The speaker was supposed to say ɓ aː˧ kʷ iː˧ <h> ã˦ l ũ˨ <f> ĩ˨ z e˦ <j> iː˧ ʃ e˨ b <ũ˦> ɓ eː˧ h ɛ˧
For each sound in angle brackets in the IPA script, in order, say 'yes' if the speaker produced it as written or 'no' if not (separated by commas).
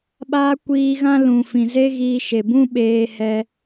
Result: no, yes, no, yes